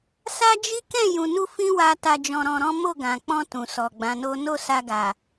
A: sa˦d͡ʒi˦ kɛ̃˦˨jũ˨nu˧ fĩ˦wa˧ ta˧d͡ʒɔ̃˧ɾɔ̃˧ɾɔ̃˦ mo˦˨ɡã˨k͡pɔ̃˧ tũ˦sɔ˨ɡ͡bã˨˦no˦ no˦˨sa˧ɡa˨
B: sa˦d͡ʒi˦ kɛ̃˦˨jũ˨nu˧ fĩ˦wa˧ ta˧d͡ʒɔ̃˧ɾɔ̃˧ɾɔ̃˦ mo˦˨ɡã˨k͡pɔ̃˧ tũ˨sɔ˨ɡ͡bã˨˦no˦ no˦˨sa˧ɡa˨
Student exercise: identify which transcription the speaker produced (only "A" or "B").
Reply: B